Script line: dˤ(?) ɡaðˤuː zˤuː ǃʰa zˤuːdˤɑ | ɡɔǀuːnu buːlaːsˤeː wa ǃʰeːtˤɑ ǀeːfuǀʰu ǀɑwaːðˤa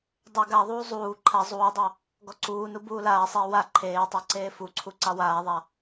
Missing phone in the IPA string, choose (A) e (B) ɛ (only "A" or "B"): A